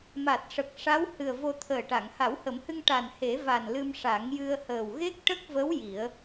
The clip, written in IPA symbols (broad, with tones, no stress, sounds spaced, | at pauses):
m a˨˩ t̚ ʂ ə˨˩ k̚ ʂ a˧˥ w h ɨ˨˩ ə̯ v o˧ t̪ʰ əː˨˩ ʈ a˨˩˨ ŋ h a˨˩˦ w h ə˨˩˦ m h ɨ˧ ŋ ʈ a˨˩ n h e˨˩˦ v a˨˩ n l ɨ˧ m ʂ a˨˩˦ ŋ j ɨ˧ ə̯ h əː˨˩ w ɣ e˦˥ k̚ ʈ ə˦˥ k̚ v ə˧˥ w j i˨˩˦ ə̯